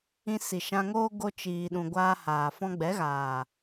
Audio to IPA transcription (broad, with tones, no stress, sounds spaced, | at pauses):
ĩ˧ s i˨ ʃ ã˧ ŋ oː˦ ɡ o˧ t͡ʃ iː˨ ɗ ũ˨ ɡʷ aː˧ h aː˨ f ɔ̃˧ ɡ͡b ɛ˨˦ ɣ aː˨